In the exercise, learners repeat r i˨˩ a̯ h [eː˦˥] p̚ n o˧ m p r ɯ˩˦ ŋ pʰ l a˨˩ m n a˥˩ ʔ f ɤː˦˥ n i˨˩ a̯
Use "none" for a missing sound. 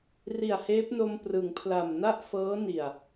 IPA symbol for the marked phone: eː˦˥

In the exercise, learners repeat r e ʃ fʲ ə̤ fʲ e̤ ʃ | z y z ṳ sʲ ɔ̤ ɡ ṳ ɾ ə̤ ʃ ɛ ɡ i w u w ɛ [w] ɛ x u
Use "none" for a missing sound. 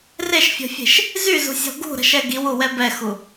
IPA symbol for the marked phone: b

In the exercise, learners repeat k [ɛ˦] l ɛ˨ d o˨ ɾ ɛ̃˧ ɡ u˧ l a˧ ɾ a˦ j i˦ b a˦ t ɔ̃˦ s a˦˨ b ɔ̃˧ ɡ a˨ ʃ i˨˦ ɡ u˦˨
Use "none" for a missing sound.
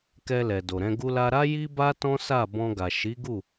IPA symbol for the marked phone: ɛ˧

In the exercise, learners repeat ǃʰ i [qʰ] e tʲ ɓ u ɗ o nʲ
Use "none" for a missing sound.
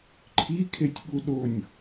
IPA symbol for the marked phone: kʰ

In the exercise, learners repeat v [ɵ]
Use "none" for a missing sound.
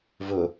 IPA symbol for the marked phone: ɵ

